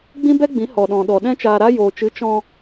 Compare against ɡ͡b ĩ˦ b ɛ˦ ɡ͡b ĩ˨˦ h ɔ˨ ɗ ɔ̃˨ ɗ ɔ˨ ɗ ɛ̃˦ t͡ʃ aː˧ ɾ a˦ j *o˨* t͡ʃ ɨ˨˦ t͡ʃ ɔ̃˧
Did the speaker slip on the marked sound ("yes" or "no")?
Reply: yes